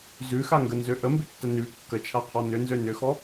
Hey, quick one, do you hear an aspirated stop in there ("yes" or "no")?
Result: yes